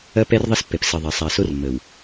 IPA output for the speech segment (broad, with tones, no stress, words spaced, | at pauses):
ɐ˦ pɛ˦rðˤɘ˦spːɛ˨p sɘ˨ðˤɐ˨ sˤa˨so˦rmːə˨w